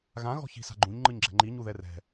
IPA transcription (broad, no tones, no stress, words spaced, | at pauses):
ɣã ɣɔ̤çi̤sa̤ɡ͡ǃũɲ ŋ͡ǃɯɲɡ͡ǁɛ̤ŋ͡ǃi ɲuðɛrɛ̤